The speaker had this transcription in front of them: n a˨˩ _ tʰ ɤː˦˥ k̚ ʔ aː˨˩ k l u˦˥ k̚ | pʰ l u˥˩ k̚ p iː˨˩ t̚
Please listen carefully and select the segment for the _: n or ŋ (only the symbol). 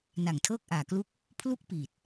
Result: ŋ